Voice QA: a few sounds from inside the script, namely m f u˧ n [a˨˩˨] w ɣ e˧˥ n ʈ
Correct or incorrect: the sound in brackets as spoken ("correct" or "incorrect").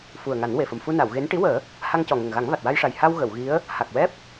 correct